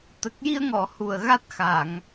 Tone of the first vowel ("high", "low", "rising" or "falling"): low